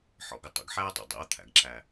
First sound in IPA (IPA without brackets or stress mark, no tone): ħ